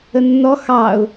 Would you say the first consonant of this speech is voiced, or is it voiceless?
voiced